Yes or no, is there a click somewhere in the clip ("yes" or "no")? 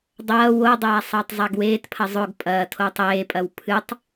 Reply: no